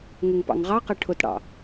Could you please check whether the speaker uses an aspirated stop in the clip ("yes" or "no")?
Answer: yes